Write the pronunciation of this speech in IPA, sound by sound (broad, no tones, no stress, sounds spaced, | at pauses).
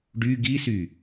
ɖ y ɡ i s y